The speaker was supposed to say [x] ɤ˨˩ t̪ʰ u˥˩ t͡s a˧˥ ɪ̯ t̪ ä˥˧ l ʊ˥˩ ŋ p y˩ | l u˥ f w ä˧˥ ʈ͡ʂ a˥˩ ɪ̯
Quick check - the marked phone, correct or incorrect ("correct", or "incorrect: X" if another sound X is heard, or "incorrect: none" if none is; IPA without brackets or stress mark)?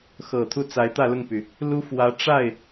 correct